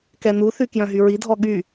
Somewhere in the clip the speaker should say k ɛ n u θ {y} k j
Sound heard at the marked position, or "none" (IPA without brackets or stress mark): y